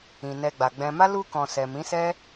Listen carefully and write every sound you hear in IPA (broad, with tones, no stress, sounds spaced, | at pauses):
ĩ˨ n ɛ˧ ɡ͡b a˨ ɡ͡b ɛ̃˧ m a˦ l u˧ k ɔ̃˨ s ɛ˨ m ĩ˨˦ s ɛ˦